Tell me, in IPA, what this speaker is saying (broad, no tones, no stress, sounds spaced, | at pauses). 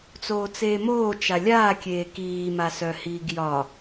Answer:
t͡s oː t͡s eː m oː t͡ʃ a lʲ aː kʲ eː k iː m a s œ h iː ɡ j ɒ